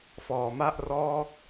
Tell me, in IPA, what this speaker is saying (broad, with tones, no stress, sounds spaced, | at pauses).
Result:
f ɔː˩˦ m a˥˩ ʔ r ɔː˥˩ k̚